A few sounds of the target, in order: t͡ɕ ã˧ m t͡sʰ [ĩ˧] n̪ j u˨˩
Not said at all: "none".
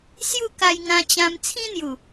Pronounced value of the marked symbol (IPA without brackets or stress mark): ĩ˦